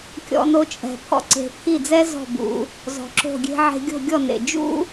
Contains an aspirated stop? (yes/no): yes